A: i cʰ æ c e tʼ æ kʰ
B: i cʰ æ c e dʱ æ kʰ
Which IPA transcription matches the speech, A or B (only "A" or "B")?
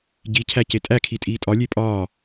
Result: A